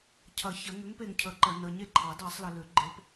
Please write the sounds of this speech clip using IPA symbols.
cʰ ɐ˨˩˦ ç ɐ˨˩˦ ŋ ʏ˨˥ ŋ p e˨ ŋ cʰ ə˨˩˦ ǃ ɐ˨ n ə˨ ɲ e˥˨ ǃʰ ɑ˨˩˦ d ɑ˨˩˦ sˤ l ə˨ l ʏ˨˩˦ ɡ͡ǃ e˨˥ p

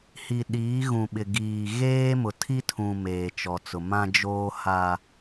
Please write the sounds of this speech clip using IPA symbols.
h i˨ ɗ iː˨˦ ɣ ũ˨ ɓ ɪ˨ ɡ iː˨ ɣ eː˦ m ʊ˨ tʰ i˦ tʰ ũ˨ m eː˨ t͡ʃ ɔ˨ t͡s ʊ˨ m ã˦ d͡ʒ oː˦ h a˦

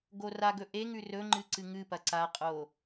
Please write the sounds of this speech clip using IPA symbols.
ɡ o r a ɡ ɵ ʔ e ŋ ʉ r ɵ ŋ͡ǃ ɨ ǀ ɨ ŋ ɨ p ɐ ǀ a qʼ o

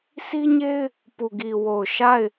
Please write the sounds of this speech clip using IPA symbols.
sʰ i˦ ɲ e˦ ɪ̯ | p u˨ ɡ i˨ w o˨ ʊ̯ ʃ a˦˨ ɪ̯

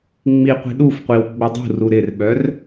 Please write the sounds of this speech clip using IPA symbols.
ŋ͡m i qʷ i̤ ɗ u f qʷ i w ɡ͡b ə dˤ ṳ r u ɾ ɪ r ɓ œ r

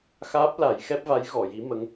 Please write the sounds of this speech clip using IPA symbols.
x aː˦˥ p̚ l a˨˩˦ j x ɛ˦˥ p̚ v a˧˥ j ɣ ɔ˨˩˨ j i˧˥ m ə˧˥ ŋ

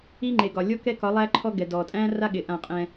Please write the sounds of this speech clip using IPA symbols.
i˦ ŋ͡ǃ e˨ ɡ ɒ˨ lʲ ɔ˦ k ɛ˦ k ɒ˨˦ lˠ æ˦ ǃʰ ɔ˦ ɡ ɛ˨ d ɔ˨ tʼ æ̃˦ r a˦ ɠ ɪ˨ ʔ ã˦˨ qʼ ɛ̃˦

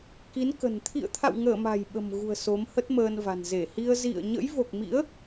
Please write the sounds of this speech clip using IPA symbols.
k i˨˦ n k ə̤˨˩ n t̪ʰ ḭ˧˨ ə̯ t̪ʰ a̰˧˨ w ŋ əː˧˩ m a̤˨˩ j ɓ ə̤˨˩ m ɣ ṳ˨˩ ə̯ s o˨˦ m h ə˦˥ t̚ m əː˧ n v a̤˨˩ n z e˧˩ h i˧ ə̯ z ḭ˧˨ ə̯ ɲ ə̰˧˥ j v o˨˩ k̚ m ḭ˧˥ ə̯

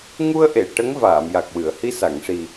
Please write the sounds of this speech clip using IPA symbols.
ŋ u˧ ə̯ ʔ e˨˩˨ ʈ ə˧˥ ŋ v aː˨˩˨ m j a˨˩ k̚ w ɨ˨˩˨ ə̯ h i˧ s a˨˩˨ ŋ ʂ i˨˩

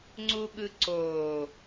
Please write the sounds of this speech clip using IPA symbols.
ŋ͡ǀ u ɠ ɯ ǀ oː

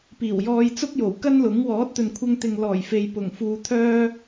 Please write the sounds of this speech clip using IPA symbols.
p iː˨˩ w j ɔː˧ j t͡s ʊ˥ k̚ j o˨˩ w k ɐ˥ n l ʊ˨˥ ŋ w ɔː˨˥ t̚ t̪ ɵ˨ n kʷʰ ɐ˧ ŋ t̪ ɪ˨ ŋ l ɔː˨˩ j f e˨ j p ʊ˨˩ ŋ f uː˧ t̪ʰ œː˥

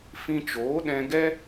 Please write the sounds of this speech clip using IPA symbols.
f ĩ˧ t͡ʃ oː˨˦ ɗ ɛ̃˧ ɡ ɛ˦

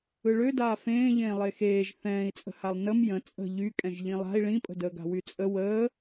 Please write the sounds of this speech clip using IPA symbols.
ɯ ɭ ø d aː f ẽː ʎ ẽː lˠ e x eː ʒ θ ɛ̃ː i̯ t͡sʼ ə̤ h a lˠ n ə m j ə̃ t͡sʼ ə̤ ʎ y kʼ ɛ̃ ʒ ʎ ĩ lˠ a̤ i̯ ɭ ĩ pʼ ə̤ d əː ɡ a̤ w y t͡sʼ ə w əː

